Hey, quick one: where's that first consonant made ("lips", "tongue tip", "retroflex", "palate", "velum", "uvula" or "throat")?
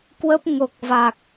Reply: velum